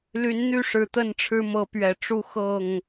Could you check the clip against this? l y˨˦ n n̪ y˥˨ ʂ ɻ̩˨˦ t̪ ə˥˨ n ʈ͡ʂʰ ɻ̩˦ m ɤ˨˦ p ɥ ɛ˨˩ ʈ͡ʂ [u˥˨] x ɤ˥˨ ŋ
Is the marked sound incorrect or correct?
correct